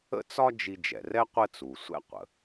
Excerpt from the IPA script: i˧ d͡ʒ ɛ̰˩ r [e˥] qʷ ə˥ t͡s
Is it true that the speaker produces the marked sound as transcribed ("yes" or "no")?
no